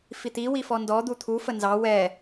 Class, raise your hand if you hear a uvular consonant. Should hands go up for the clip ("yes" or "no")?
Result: no